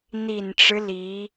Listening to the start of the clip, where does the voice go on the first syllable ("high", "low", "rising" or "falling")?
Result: low